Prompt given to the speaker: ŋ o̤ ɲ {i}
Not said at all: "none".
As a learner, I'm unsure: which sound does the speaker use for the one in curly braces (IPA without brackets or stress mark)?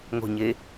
e